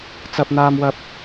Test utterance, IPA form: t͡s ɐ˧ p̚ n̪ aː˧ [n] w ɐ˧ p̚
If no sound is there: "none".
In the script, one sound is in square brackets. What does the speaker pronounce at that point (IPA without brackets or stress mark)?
m